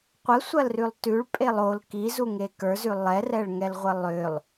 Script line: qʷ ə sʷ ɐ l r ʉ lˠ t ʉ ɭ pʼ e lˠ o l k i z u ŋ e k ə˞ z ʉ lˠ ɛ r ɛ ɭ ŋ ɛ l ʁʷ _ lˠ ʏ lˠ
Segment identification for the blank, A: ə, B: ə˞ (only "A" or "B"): A